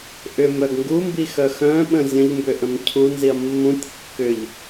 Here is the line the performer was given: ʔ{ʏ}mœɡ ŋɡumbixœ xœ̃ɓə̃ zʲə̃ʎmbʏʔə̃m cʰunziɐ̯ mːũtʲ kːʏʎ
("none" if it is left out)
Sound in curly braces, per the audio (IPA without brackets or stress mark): ʏ